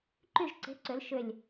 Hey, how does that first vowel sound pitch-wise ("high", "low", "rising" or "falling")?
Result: falling